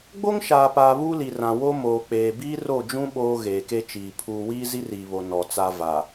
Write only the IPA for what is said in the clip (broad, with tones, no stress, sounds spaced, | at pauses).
ɡ͡b o˦ ŋ ʃ aː˨ p aː˨ β uː˦ l i˨ r ã˨ w o˦ m oː˨ k͡p eː˨ b iː˦ r o˦˨ d͡ʒ ũ˦ ɓ oː˦ ɣ eː˨ k e˦ t͡ʃ iː˨ pʰ uː˨ w iː˦ z i˦ r iː˨ β o˨ n ɔ˨ t͡s a˨ v a˨